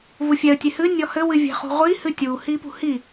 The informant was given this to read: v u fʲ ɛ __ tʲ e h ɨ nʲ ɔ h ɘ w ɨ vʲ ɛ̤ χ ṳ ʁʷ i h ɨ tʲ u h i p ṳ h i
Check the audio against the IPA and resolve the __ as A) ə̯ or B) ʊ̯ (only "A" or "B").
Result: A